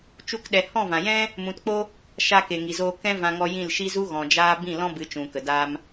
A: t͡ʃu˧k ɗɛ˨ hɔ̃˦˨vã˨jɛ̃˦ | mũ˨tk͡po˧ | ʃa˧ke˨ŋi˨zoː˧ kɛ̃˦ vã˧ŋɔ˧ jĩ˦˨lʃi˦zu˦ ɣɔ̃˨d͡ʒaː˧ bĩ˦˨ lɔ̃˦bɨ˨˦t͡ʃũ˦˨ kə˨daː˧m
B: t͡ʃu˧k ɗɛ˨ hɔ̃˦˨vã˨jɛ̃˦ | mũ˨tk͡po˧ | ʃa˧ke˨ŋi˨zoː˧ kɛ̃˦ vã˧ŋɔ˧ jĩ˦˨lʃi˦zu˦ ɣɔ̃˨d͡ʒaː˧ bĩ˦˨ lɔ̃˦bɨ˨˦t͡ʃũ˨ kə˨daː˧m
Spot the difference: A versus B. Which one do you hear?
B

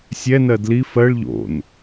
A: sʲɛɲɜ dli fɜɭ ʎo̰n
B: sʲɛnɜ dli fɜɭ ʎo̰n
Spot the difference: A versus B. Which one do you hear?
B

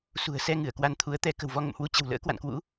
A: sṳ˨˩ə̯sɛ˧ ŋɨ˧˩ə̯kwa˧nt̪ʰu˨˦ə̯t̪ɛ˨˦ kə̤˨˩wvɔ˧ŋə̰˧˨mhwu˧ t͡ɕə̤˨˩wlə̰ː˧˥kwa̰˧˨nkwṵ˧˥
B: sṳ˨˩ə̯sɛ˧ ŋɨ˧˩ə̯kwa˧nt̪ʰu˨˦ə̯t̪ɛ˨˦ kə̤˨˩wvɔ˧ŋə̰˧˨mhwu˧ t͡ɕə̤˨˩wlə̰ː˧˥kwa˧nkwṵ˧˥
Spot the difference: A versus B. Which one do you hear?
A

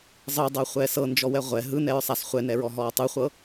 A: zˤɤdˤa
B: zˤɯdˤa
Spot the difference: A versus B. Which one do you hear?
B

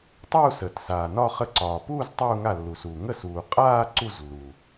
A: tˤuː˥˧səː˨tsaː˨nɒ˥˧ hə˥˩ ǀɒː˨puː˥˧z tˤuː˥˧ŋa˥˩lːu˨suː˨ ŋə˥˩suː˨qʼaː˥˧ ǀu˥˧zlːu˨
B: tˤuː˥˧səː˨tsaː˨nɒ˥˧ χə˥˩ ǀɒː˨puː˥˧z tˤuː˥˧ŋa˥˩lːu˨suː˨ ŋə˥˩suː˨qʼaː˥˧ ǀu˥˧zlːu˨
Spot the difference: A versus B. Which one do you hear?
B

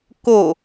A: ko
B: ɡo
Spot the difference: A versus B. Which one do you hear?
A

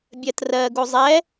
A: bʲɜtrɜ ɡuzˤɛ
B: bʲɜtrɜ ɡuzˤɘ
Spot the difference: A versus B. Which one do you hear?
A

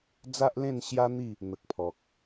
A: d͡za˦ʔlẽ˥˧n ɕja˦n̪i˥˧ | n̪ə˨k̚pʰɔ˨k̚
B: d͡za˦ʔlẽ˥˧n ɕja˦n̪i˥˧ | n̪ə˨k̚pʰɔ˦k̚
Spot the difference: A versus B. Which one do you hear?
A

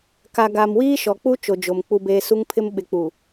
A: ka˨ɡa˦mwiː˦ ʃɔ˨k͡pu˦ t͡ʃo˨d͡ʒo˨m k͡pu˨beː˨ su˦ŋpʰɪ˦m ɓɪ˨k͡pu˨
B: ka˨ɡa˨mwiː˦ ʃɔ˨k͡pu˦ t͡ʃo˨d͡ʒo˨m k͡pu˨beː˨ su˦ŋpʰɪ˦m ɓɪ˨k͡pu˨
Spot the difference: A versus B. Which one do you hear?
B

